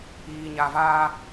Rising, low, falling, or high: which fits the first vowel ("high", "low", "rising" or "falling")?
low